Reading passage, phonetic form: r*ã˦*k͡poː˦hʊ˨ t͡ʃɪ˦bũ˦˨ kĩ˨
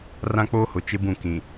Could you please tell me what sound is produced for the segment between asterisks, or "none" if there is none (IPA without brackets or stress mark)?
ã˦